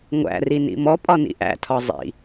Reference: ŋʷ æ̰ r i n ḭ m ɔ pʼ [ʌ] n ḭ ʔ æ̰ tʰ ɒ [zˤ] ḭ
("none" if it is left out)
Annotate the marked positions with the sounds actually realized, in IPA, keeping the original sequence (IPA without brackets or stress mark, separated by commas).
ɒ, zˤ